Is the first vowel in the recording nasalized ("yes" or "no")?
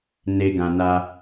no